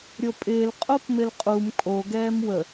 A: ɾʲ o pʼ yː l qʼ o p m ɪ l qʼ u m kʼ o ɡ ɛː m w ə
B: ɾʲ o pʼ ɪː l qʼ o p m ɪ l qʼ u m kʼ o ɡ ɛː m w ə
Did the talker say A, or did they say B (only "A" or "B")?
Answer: B